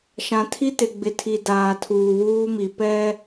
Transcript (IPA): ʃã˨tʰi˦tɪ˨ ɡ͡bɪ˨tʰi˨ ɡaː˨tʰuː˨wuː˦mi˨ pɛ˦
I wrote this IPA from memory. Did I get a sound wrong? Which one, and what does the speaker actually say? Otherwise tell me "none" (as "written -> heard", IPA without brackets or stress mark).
ɡ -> d